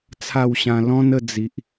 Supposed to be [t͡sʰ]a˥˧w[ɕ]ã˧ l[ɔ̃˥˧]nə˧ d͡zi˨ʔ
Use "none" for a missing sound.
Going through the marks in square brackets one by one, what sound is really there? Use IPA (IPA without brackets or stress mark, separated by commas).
t͡sʰ, ɕ, ɔ̃˦